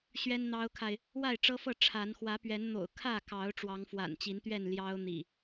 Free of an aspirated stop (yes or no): no